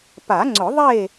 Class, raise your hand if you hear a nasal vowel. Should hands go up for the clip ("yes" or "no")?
no